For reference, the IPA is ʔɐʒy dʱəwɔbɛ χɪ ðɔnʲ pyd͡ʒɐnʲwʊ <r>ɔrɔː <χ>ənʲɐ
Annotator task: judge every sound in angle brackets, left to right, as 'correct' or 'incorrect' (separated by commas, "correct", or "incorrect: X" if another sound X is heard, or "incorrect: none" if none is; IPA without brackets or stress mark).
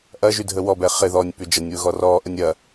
incorrect: ɣ, incorrect: ʔ